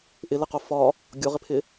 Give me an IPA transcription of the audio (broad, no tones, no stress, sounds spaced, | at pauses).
ʔ ɪ l ɪ q o f ɒ | ɡʲ o ʁ ɪ pʰ ɪ